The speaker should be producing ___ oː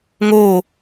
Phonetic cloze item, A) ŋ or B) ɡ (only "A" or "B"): A